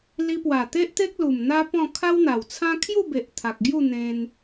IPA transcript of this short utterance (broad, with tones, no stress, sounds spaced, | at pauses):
l i˧ p w a˨˩ t̪ e˦ ʔ t̪ e˦ k̚ l u˨˩ m n̪ a˦ p ɔ̃˥˧ kʰ a˦ w n̪ a˨˩ w t͡sʰ ã˦ kʰ j u˥˧ b e˨ ʔ t̪ʰ a˨ k̚ ɡ j u˥˧ n̪ ẽ˧ n